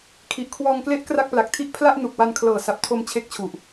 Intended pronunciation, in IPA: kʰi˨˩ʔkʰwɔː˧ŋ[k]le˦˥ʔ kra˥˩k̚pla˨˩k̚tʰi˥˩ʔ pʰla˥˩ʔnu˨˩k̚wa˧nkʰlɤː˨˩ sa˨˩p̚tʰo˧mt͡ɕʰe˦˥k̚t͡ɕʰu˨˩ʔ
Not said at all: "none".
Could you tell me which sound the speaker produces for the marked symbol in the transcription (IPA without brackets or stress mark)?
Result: k